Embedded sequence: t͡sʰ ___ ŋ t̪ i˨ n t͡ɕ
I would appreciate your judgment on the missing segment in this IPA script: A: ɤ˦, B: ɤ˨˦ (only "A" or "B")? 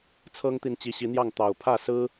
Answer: A